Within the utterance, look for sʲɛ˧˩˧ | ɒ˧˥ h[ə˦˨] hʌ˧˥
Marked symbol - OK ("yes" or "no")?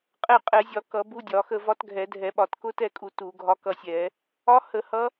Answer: no